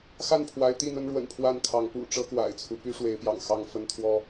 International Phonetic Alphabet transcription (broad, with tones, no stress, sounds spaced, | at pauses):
x a˥˨ n pʰ w a˨˦ ɪ̯ t̪ i˥˨ n̪ ə˦ n ɻ w ə̰˨˩ n pʰ w a˥˨ n kʰ ɑ˨˦ ŋ p ṵ˨˩ ʈ͡ʂ ɤ˦ k w a̰˨˩ ɪ̯ t͡sʰ u˦ p y˦ ʂ w e˨˦ ɪ̯ p j ɑ̰˨˩ ŋ x ɑ˥˨ ŋ f ə˦ n t̪ʰ w ɔ˦